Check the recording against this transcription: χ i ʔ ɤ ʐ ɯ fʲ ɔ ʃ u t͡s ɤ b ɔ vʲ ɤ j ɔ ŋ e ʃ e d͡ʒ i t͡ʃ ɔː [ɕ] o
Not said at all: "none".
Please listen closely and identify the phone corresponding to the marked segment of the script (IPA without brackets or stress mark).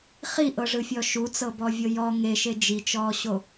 ɕ